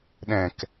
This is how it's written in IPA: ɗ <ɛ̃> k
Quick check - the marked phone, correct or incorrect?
correct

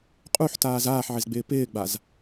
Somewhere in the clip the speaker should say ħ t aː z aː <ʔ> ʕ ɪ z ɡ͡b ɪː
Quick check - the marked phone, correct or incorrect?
incorrect: ħ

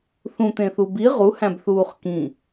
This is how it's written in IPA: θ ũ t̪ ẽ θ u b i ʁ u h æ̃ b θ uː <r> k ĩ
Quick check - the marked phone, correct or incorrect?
incorrect: χ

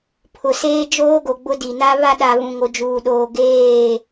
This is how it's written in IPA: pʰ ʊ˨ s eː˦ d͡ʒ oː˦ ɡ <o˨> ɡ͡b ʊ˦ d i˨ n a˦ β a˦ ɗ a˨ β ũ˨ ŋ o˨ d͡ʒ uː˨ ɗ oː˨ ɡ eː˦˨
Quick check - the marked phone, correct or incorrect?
correct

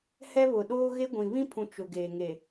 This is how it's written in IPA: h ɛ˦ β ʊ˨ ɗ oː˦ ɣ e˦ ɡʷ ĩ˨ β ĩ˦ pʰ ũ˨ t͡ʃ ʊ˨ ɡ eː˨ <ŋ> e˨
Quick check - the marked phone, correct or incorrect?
correct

